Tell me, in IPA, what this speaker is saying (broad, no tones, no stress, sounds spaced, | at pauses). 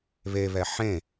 β e β ɛ ħ ẽ